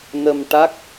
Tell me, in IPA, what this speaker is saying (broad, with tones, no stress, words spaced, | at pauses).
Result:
nə˧m ʈa˦˥k̚